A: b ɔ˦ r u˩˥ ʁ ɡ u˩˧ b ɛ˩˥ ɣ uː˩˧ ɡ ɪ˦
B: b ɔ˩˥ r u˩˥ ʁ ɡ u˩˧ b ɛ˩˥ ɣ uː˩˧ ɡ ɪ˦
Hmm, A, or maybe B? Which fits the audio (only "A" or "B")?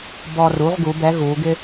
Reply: A